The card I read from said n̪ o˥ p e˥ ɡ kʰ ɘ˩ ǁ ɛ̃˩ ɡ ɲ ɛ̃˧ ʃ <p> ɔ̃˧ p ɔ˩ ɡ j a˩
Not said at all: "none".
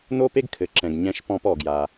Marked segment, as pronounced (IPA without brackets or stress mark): p